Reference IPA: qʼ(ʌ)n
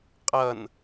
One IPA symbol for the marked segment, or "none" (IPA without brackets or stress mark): ʌ